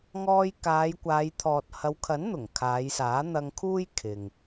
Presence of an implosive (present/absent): absent